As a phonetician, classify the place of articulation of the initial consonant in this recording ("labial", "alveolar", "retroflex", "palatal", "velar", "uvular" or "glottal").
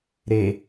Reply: alveolar